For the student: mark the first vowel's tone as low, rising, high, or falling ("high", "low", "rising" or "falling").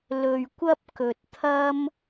low